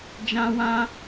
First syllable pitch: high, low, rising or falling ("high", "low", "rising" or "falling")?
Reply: high